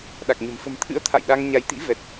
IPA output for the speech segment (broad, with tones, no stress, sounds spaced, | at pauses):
ɗ a˨˩ k̚ ɲ ə̤˨˩ m f ə̤˨˩ m t̪ʰ ɨ̰˧˥ ə̯ t̪ʰ a̰˧˨ j ɗ a˧ ŋ ɲ a˨˦ j t̪ ḭ˧˥ v ɛ˨˩ t̚